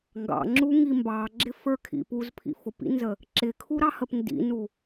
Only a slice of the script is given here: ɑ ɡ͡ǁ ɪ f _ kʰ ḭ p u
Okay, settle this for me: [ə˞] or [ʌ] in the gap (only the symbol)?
ə˞